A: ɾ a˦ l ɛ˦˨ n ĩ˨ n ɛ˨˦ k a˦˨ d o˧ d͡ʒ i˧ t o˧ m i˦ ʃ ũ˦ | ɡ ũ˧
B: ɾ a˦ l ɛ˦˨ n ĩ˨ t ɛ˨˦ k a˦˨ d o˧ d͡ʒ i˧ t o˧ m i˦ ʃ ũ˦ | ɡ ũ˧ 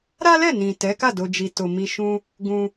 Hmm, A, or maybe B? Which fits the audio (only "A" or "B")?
B